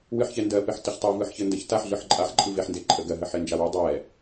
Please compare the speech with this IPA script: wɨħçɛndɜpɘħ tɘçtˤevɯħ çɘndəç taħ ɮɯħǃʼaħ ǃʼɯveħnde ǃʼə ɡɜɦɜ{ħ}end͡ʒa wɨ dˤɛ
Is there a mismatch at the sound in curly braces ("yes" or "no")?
no